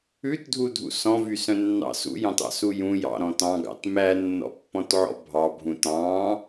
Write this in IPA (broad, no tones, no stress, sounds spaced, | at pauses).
ʉ t dʱ u dʱ ṵ s ɔ̃ v y s œ̃ nː ɑ̰ s ṵ j ɑ̃ t ɑ̰ s u j ũ j ɑ̰ ɾ ɔ̃ t ɑ̃ ɡ ɑ̰ t m æ nː ɔ̰ pː ɔ̃ t ʕ ɔ̰ bʱ ɑ bʱ ũ t ɑ̃